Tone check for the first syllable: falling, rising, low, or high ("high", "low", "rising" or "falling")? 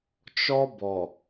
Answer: high